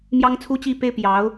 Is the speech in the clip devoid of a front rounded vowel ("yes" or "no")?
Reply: yes